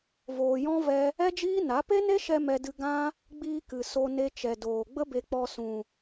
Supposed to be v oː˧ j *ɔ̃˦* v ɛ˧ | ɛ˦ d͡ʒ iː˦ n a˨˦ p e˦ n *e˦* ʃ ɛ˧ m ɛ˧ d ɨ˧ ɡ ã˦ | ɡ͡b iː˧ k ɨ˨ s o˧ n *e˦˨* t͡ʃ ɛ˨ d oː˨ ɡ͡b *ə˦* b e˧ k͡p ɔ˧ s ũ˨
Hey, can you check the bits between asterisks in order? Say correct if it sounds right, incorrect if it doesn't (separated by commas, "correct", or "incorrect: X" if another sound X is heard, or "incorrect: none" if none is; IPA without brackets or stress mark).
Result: correct, correct, incorrect: e˧, correct